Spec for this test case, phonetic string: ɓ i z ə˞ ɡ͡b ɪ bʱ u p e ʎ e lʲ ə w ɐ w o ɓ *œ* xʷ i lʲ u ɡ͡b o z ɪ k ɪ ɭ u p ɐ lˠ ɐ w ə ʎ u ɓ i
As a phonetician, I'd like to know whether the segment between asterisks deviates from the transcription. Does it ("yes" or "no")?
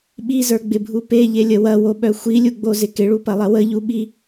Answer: no